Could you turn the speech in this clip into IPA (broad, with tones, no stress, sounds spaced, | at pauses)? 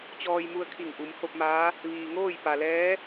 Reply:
t͡ɕ ɔː˧ j m u˧ ə̯ kʰ i˧˩ ŋ ʔ u˩˧ m h o˧ p̚ m aː˧˥ | ʋ iː˩ ŋ oː˥˨ j p a˩ l ɛː˧˥